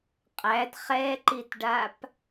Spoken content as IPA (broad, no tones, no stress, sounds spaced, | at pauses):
qʼ æ d χ ɛ ǃ i t ɖ a p